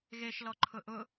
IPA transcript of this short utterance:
ɣ e ʃ l ɔ ǃʰ ʊ ʔ ʊ

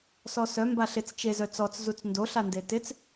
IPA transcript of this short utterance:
s ɔ s œ m b a ɬ ɪ t͡s t͡ʃ e z œ t͡s ɔ t͡s z u t͡s n d o ɬ a n d e t ɪ t͡s

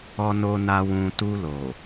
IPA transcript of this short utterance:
ɔ˨ n o˨ n a˨ w ũ˨ t u˧ l o˨

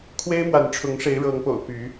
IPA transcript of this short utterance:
kʰ w e˦ ɪ̯ m w a˨˦ n ʈ͡ʂʰ ʊ˨˦ ŋ ʂ e˨˦ ɪ̯ ɻ ɤ˨˦ ŋ p o̰˨˩ ʊ̯ p y˨˦

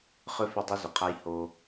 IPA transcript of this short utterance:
χ ʏ˧ f ʏ˧ dˤ i˧ z ʏ˨ qʰ a˧ j h o˧

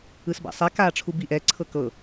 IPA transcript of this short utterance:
ɯ s b a̰ sˤ ɛ k aː ʈ͡ʂʰ u b i ʔ ɛ ǀʰ ɤ k ɤ

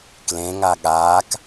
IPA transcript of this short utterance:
k l ẽ ŋ a ɠ aː k

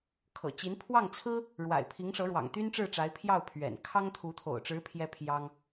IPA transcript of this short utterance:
kʰ ɤ̰˨˩ t͡ɕ i˧˥ n pʰ w ɑ˥˩ ŋ t͡sʰ ɹ̩˥ | ɻ w a̰˨˩ ɪ̯ pʰ i˧˥ ŋ ʂ ɤ˧˥ ɻ w ɑ̰˨˩ ŋ t̪ y˥ n ʈ͡ʂ ɻ̩˥˩ ʈ͡ʂ a˧˥ ɪ̯ pʰ j ɑ˥˩ ʊ̯ pʰ ɥ ɛ̰˨˩ n kʰ ɑ˥ ŋ t̪ʰ u˧˥ t̪ʰ o̰˨˩ ʊ̯ ʈ͡ʂ ɻ̩˧˥ pʰ j ɛ˥ pʰ j ɑ˥ ŋ

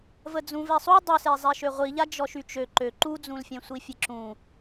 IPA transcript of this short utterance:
v ə d͡z ũ v ɛ sˤ u dˤ ø s e zˤ ɛ ʃ ø ʁʷ i ʎ a d͡ʒ ɔ ʃ y t͡ʃ ø ǃ ø ǃ u d͡z ũ l fʲ ẽ sʷ i fʲ e ǁ ũ

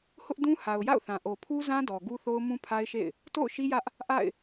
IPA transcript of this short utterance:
h ʊ˦ ʔ d ũ˦ h a˨ ʊ̯ j a̰˦˨ ʊ̯ θ ã˨ ʔ o˨ pʰ u˦ z ã˦ d ɔ˨ ɡ u˦ θ o˦ ʊ̯ m ũ˦ pʰ a˦ ɪ̯ ʃ ḛ˦˨ ɪ̯ | t o̰˦˨ ʊ̯ ʃ i˦ j ä˦ ʔ | ʔ a̰˦˨ ɪ̯

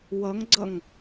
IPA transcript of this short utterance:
w ʌ ŋ ɡ͡ǀ ʌ ŋ

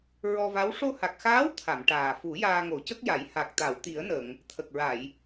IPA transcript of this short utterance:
ɹ ɔ˧ v a˧˥ w ʂ o˧ h a˨˩ k̚ x aː˧˥ w t̪ʰ a˨˩˨ m ʈ aː˨˩ f u˨˩˦ j aː˧ ŋ o˨˩˦ c ə˦˥ k̚ j a˨˩˦ j h a˨˩ k̚ t̪ a˨˩˨ w t̪ i˨˩˦ ə̯ n ə˨˩˨ ŋ | t̪ʰ ə˨˩ k̚ ɹ a˨˩˨ j

